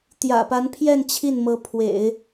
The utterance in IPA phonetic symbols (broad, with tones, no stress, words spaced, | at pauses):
t̪jä̰˨˩pa˧˥npʰjɛ˥˧n t͡ɕʰi˥˩nmɤ˧˥ pʰwḛ˨˩˦ɪ̯